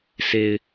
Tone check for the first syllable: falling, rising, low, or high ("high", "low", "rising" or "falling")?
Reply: low